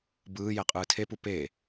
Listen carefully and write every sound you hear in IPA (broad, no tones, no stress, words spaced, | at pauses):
bɯː jɛqʼɯːtʰepu pe